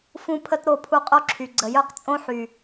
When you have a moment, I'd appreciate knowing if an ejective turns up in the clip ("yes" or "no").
yes